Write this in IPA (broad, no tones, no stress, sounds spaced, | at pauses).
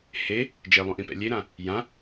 h e | d͡ʒ e lˠ ũ ʔ ĩ p ɛ̰ lʲ e ɾ ã | j ã